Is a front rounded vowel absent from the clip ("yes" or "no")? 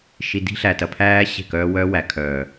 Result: no